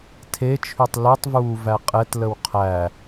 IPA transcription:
tʰet͡ʃʰytˤ lutˤvuː væqʼɛtləw qʰæ

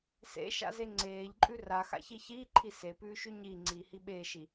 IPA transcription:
sḛʃa̰ze ŋ͡ǀeːʎǃʼʉ raxa̰çi çiːǃʰi sepʉːʃʉ ɲiŋ͡ǀiːhi ɓeːʃi

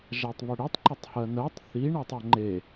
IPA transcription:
ʒatˤβəɽitˤ ǃɐtˤhɜnɜtˤ θi ɳatˤɐŋ͡ǃe

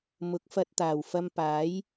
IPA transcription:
mʊ˨˥k̚fɐ˧t̚ t̪aː˨˩wfɐ˧mpaː˨˥j

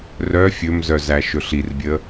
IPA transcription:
rœ fʲɵmzœzæ ʃɵɬirbʲə

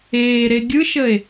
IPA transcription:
eːɾe ɡʲɯʃəe̯

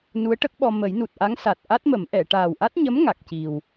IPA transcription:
nu˧˥ə̯ʈə˦˥k̚ɓɔ˧ mə˨˩˦j nu˨˩t̚ʔa˧˥ŋsa˨˩t̚ ʔa˦˥t̚mə˨˩˦m ʔɛ˨˩˨ ʈaː˨˩wʔa˦˥t̚ɲə˧˥m ŋa˨˩k̚ci˨˩w

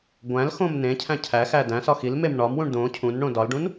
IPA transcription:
ɡʷæ̃lxõm nẽcʰæ̃ cʰæxæ dæ̃sɒ xilmem ɳɒmwũɳ dõ cʰũnɳõ dɒlɖũn

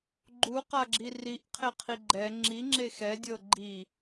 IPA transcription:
ɡ͡ǃuqaɡ͡ǁi riʔqʰeqʰi ɡ͡ǃɛ ŋ͡ǁiŋ͡ǁe xɛdʲɤ ɡ͡ǃi

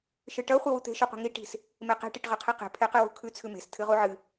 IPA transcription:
ʃɨʈɐ χʷiwut̪e̤ ʃʉqʷi̤ŋi ʈi̤s | meqe̤ ʈiʈʁɐqʰiqe̤ pʰeqɨwṳkʰʉ t͡sʰʉme̤s tʰɨʁuʕɨ

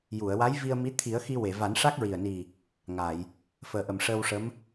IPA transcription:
ju˨˩˨ə̯wa˧˥j vi˧ə̯mi˧˥ t̪ʰi˨˩˦ə̯xi˧ we˨˩˨va˨˩˦n ʂa˦˥k̚ɹi˨˩ə̯ni˨˩ | ŋa˨˩˨j | fəː˨˩˦ʔə˨˩mʂəː˧wʂə˧˥m

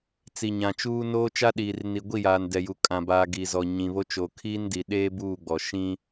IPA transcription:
t͡si˨ɲã˨t͡ʃuː˦ noː˦t͡ʃa˦ɗiː˨r ni˨ɡʷi˦˨jaː˨n dɛ˨ju˨kʼã˨baː˨ ɡi˨zɔ˨ ɲĩ˨βo˦ t͡ʃo˨kʰiː˦ndi˨ɗeː˦ buː˦˨ɡ͡bɔ˨ ʃĩ˦

